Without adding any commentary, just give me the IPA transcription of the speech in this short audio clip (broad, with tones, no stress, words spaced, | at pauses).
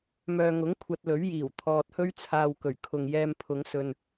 mœː˨ŋʊ˨˥ŋ kʷʰɐ˧t̚lɵ˨˥ɥjiː˨˩w t̪ʰɔː˨t̚hɵ˥ɥt͡sʰaː˧wkɵ˨˩ɥ kʰʊ˨ŋjɛː˧mpʰʊ˨˧ŋ sɵ˨n